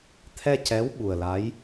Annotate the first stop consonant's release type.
aspirated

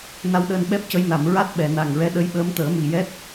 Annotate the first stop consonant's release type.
implosive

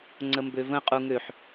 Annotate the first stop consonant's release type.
click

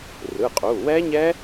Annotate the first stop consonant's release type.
ejective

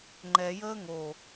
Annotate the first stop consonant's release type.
click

